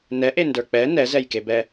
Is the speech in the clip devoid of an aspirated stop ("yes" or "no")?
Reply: yes